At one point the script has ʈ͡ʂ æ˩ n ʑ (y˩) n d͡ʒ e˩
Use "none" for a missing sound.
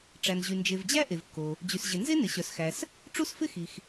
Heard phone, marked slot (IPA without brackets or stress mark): y˩